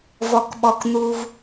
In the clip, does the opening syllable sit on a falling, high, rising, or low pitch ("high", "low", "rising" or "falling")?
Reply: low